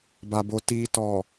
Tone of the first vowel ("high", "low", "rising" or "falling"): low